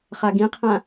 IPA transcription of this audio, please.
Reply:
χ a ɡ ĩ qʰ ã

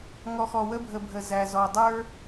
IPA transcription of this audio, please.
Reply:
ŋ ɔ˨ x ɔ˨ w ə˧ bʱ ə˨ bʱ ə˨ z æ˨ z ɔ˨ dˤ ə˞˦

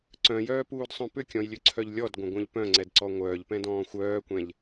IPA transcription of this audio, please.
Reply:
ǀ œ̃ j œː p uː d sˤ œ̃ p ʏ kʲ ɔ̃ j lʲ ø ǀʰ œ ʎ lʲ ɔ d ɡʷ œ̃ ɡʷ œ̃ ʎ p œ̃ ŋ͡ǀ ɛ d ǀ ɔ ŋʷ œː ʎ p ɛ̃ d ɔ̃ː xʷ œː kʷ ɛ̃ ʎ

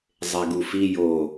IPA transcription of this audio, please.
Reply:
zˤ e ɡ u f i j o

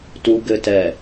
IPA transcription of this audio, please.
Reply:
t u ɡ ɘ t ɛ

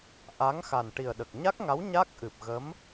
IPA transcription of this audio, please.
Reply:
ʔ a˧˥ ŋ x a˨˩ n ʈ i˨˩ ə̯ ɗ ə˨˩ k̚ ɲ a˦˥ k̚ ŋ a˧˥ w ɲ a˦˥ k̚ ʔ ɨ˨˩ p̚ ɣ ə˧˥ m

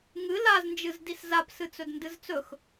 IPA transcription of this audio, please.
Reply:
ŋ ɨ l a z n d͡ʒ ɨ z d i s z a p s ɨ t͡s ɵ d n d ɨ z t͡s ɵ x

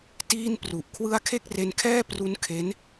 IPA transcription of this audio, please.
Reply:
t iː˥˩ n p r u˨˩ ʔ kʰ w ɯ˦˥ a̯ kʰ e˥˩ k̚ r e˧ n kʰ ɛː˥˩ p r u˦˥ n kʰ e˦˥ n

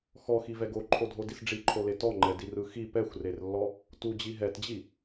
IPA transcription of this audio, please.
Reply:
x ɔ x i v ɛ ɡ o ǃʰ o dʱ o d i s ɖ͡ʐ i ǃʰ o l e t ɔ ŋ͡ǃ ɛ d i r ɯ x i p ɛ xʷ r e r lː ɔ | t u d͡ʑ i ɦ ɛ t d͡ʑ i

